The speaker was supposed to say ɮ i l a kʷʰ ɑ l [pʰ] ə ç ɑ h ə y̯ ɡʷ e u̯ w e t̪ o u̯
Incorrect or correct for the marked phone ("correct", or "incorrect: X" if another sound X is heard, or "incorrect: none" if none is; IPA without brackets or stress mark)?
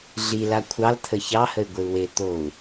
incorrect: t̪ʰ